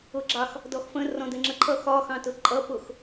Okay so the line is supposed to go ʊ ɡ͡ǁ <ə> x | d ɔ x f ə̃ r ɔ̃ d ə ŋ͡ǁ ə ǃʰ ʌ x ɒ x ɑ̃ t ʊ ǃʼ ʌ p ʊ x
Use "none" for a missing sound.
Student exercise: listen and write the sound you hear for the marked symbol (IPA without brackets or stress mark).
ɑ